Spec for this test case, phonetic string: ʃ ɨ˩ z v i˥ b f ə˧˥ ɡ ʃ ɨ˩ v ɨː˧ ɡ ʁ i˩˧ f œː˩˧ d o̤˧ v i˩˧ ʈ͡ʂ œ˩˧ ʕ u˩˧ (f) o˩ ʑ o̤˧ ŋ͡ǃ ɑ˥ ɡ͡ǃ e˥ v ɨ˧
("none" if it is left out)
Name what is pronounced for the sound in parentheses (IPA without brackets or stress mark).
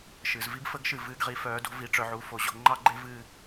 f